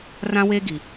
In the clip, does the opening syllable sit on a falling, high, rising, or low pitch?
high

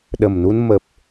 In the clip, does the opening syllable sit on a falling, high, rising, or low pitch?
low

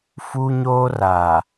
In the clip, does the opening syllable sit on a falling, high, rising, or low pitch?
high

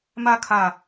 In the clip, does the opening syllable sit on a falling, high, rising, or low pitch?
high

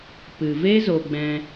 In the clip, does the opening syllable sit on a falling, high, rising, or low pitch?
low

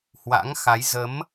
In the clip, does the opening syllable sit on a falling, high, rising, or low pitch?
rising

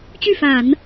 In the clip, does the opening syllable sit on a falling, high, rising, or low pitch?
falling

